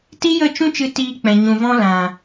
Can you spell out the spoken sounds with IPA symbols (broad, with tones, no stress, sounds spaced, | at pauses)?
t i˦ j ə˦˨ t͡ʃ ũ˦ t͡ʃ ɨ˧ t iː˧ k͡p ɛ̃˨ ɲ ũ˨ v ɔ̃˧ l ã˨